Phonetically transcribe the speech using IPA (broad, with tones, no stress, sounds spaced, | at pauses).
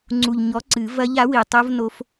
ŋ͡ǀ u˨˩ ʎ ɲ ɔ˨˥ ǀ ɨ˨˩˦ v ɐ˦˥ ʎ a˨˥ w i˨˩ tˤ o˦˥ v n o˦˥ f